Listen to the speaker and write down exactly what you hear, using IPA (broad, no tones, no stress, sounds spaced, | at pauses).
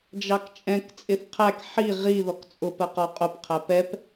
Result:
d͡ʒ ɑ k t͡ʃʼ ɛ̃ k t͡sʼ ɪ θ qʰ æ k ħ i ʁ i ð ɔ k t͡sʼ ʊ p ɜ q ɔ qʼ ʊ p qʰ æ p ɛ p